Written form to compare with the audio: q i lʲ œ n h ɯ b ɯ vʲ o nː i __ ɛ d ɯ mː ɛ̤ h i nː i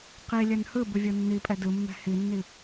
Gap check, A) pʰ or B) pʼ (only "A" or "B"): B